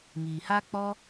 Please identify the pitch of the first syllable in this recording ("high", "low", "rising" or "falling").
low